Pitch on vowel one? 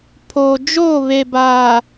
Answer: low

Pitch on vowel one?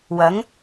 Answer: rising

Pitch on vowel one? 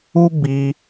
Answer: high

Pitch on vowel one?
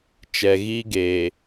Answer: low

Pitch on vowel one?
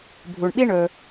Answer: low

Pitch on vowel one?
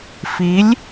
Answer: rising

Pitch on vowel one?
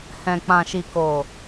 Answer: low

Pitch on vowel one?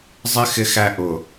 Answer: high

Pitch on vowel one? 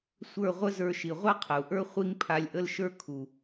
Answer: falling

